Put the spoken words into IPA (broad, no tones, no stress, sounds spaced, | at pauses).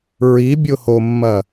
ɹ i bʲ ʊ h o mː ɐ